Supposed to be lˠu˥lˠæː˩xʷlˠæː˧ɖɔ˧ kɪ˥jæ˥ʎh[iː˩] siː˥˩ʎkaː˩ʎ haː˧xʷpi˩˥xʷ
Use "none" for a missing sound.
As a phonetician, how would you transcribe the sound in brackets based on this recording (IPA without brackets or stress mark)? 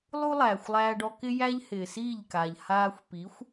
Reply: ɪː˩